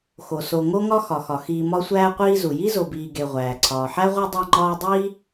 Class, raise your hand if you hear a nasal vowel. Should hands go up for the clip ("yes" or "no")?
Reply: no